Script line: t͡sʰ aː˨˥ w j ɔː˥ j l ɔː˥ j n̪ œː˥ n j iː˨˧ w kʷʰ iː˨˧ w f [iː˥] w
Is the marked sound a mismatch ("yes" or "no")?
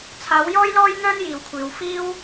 no